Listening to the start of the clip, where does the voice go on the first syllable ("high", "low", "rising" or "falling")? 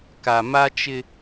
low